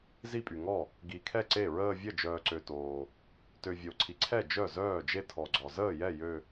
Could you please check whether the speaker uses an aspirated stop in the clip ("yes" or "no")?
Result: yes